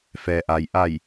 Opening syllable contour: low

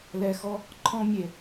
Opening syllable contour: low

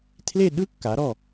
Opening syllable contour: falling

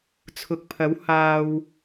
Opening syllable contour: low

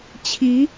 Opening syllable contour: rising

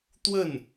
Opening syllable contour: falling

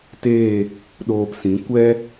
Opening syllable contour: falling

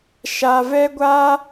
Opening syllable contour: low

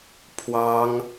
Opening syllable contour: high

